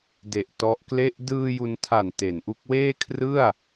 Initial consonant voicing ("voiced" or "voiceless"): voiced